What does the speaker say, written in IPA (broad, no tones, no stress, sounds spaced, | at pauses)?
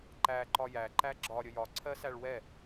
ǃ æ ǃ ɒ j æ ǃ æ ɡ͡ǁ ɒ ɾʲ ə j ɒ ǀʰ ɜ s æ ɭ w ɛ